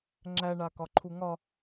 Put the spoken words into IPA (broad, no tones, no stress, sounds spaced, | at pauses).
ŋ͡ǁ æ ɳ a k ɒ ǃʰ u ŋ ɒ